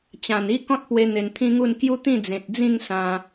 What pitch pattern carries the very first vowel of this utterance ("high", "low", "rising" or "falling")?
low